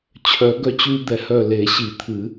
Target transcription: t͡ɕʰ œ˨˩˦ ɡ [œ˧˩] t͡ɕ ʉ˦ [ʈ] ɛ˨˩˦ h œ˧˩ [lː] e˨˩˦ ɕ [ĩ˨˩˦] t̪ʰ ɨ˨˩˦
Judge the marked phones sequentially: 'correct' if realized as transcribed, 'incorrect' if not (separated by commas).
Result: incorrect, incorrect, incorrect, incorrect